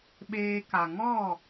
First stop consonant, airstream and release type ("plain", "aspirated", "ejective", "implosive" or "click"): implosive